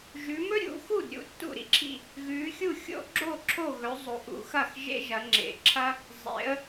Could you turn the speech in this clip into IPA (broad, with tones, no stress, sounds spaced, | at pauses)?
ʒ ʉ˩˧ m ɵ˥ ɾʲ ṵ˩˧ x u˥˩ d ɾʲ ṵ˥˩ tː ṵ˥˩ ɾ ḭ˥ ǁʰ ḭ˥˩ | ɣ ʉ˩˧ xʲ u˥˩ xʲ o̰˥ ɡ͡ǁ o˥˩ ǁʰ o˥˩ ɣ ɵ˩˧ zˤ o˩˧ ʔ ṵ˩˧ x ɐ˥˩ x ʒ ḛ˥ ʒ ɐ˩˧ ŋ͡ǁ ḛ˩˧ ǁʰ ɐ˥ | zˤ ḛ˩˧ ə̯